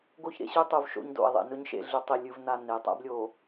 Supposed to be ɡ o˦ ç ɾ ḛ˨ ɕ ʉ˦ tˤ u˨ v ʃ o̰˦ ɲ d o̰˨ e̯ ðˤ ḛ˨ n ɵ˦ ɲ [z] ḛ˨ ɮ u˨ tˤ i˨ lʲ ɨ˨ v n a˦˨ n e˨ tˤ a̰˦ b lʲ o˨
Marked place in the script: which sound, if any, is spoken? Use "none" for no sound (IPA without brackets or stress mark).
ʃ